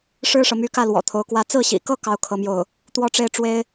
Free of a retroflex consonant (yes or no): no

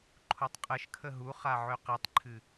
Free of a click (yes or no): no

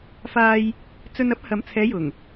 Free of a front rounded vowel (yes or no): yes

